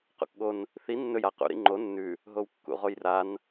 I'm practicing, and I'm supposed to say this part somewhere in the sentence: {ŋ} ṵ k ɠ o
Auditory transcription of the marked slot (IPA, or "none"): q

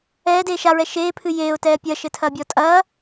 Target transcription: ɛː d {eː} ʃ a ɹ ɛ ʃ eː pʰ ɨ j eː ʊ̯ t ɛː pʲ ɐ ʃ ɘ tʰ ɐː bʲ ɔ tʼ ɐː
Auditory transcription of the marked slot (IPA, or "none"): eː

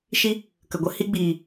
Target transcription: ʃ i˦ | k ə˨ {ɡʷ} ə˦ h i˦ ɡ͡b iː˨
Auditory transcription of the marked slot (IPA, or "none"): ɡʷ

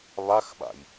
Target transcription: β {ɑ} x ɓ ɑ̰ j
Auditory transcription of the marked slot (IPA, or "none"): ɑ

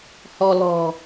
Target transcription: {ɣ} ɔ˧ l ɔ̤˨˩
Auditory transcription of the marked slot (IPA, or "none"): h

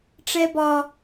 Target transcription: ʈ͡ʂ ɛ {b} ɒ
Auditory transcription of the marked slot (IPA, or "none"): b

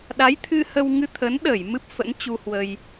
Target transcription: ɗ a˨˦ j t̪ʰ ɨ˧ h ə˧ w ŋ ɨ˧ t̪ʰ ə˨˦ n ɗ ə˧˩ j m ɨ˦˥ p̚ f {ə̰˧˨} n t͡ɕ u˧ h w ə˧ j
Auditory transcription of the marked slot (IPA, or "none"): ə̰˧˥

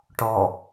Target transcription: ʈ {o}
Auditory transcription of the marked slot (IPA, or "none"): ɔ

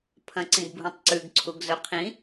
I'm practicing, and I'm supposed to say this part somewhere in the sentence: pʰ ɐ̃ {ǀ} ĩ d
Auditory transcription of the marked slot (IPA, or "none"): ǀ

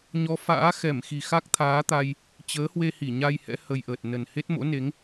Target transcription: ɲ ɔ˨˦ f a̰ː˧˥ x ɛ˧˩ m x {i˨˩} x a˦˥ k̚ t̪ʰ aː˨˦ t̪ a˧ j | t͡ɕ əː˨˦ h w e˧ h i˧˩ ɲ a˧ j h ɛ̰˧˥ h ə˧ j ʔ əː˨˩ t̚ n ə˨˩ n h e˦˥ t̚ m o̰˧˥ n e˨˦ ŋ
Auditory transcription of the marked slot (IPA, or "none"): i˨˩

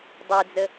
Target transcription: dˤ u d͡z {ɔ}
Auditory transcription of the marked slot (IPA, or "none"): ə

